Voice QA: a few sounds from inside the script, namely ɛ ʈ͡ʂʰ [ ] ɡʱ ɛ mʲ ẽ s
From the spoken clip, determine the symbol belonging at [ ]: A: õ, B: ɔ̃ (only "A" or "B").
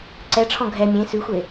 B